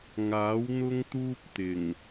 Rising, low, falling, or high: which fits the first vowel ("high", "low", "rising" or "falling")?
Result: rising